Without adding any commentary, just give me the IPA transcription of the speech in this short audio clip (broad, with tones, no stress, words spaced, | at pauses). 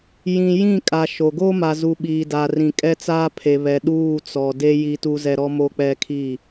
jĩ˨ jĩ˦˨kʼa˨ ʃo˨ ɡoː˦ma˨zu˨ ɓiː˨da˨rĩ˨ kʼɛ˦t͡saː˦ pʰe˨βɛ˨ ɗuː˦˨t͡sɔ˨de˦ ji˦tu˦zɛ˦ ɾɔ˦mo˦k͡pɛ˦kʰiː˦˨